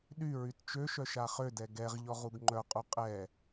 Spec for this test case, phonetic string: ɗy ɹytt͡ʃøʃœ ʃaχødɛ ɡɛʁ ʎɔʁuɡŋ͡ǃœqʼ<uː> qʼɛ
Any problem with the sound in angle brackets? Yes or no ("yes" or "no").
yes